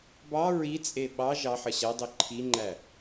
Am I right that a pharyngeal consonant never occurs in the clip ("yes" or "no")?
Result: no